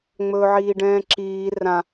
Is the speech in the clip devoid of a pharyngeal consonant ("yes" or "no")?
no